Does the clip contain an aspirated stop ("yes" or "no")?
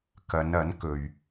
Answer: no